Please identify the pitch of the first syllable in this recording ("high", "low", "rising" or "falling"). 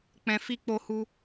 low